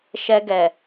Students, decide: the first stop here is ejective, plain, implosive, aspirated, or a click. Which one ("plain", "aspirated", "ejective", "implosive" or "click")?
plain